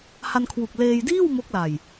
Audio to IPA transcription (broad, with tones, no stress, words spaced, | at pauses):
ha˧nkʰwu˨˩k̚leː˧j diː˥˩w mo˦˥k̚la˨˩j